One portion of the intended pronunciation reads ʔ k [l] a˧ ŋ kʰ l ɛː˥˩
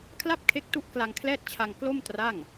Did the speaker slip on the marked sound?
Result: no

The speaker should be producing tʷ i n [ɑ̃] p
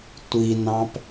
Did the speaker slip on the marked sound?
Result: no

